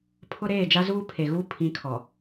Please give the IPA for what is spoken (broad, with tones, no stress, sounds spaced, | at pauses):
pʰ ʊ˦ ɾ eː˦˨ d͡ʒ a˦ z uː˦ pʰ e˨ ɣ uː˦ pʰ ĩ˨˦ kʰ ɔ˨